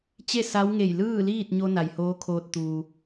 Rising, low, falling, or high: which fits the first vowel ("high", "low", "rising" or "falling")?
falling